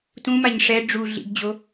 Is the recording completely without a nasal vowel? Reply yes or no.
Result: no